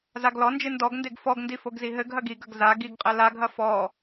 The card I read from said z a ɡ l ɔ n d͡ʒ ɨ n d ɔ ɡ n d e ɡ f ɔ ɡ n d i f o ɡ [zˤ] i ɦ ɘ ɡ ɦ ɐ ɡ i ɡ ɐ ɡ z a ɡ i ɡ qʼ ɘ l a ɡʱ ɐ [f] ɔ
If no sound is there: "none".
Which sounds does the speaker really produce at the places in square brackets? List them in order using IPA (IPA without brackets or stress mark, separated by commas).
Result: z, f